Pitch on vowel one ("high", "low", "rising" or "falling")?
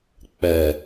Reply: low